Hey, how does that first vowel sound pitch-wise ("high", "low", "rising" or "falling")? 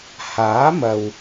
rising